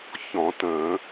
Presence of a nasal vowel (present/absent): present